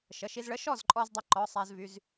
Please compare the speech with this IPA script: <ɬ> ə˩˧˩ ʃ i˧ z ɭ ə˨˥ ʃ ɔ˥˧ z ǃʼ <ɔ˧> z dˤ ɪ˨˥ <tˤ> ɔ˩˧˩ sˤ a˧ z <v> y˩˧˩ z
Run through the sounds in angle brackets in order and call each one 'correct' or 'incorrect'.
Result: incorrect, correct, incorrect, correct

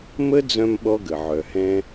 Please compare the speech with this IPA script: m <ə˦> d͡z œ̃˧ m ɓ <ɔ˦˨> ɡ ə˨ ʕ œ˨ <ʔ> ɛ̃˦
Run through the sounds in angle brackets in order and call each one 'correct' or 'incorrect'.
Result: correct, incorrect, incorrect

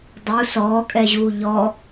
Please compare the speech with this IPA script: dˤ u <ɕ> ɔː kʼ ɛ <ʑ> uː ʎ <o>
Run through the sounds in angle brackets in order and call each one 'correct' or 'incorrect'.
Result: incorrect, correct, incorrect

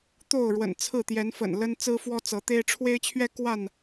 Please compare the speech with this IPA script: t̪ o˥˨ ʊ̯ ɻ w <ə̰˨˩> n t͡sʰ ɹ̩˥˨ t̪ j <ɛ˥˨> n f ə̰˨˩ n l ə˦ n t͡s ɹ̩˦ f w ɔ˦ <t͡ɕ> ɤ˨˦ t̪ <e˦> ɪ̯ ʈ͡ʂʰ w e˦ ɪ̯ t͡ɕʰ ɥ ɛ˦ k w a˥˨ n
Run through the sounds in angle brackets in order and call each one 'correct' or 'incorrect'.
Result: correct, incorrect, incorrect, correct

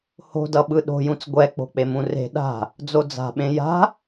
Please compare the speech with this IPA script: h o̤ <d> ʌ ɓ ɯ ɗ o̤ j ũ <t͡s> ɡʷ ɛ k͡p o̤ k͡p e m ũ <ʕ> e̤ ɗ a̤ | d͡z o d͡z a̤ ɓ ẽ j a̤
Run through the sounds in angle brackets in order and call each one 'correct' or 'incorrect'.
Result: correct, correct, incorrect

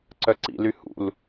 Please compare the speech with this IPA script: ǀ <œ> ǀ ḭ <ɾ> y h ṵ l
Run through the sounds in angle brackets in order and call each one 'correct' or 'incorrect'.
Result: correct, incorrect

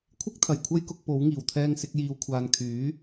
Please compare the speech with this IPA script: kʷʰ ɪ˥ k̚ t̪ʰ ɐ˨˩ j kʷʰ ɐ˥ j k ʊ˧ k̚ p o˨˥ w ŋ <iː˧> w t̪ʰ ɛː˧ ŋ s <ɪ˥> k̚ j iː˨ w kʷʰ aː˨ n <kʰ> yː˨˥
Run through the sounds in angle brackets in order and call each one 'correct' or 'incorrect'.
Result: incorrect, incorrect, correct

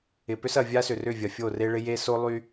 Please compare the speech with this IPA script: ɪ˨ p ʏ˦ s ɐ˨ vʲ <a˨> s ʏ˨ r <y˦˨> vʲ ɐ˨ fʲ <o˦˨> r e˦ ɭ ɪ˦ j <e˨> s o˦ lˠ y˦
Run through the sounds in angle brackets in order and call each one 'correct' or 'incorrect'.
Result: incorrect, incorrect, correct, incorrect

